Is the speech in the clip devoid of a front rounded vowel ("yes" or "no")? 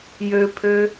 no